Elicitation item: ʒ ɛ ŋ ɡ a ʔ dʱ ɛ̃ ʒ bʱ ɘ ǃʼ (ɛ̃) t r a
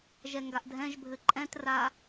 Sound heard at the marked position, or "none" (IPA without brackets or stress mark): ɛ̃